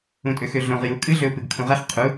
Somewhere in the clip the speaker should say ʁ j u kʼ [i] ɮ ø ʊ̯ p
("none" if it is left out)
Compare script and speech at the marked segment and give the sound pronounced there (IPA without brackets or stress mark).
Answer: ɨ